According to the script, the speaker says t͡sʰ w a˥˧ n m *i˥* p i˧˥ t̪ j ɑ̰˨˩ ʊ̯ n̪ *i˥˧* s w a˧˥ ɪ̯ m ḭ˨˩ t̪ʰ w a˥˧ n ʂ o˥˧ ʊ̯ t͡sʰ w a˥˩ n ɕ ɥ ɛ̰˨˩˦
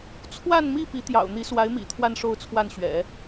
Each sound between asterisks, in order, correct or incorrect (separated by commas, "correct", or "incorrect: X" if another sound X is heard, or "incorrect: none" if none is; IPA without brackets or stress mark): incorrect: i˥˩, incorrect: i˧˥